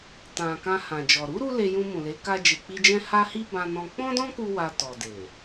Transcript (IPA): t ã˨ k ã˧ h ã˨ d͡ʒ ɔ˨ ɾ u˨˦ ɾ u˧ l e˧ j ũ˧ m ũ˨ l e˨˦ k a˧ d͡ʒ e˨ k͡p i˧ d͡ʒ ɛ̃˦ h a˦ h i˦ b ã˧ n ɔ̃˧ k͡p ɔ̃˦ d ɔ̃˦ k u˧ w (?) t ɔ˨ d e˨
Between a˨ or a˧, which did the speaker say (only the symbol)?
a˧